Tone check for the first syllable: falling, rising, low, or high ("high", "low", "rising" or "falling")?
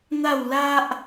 falling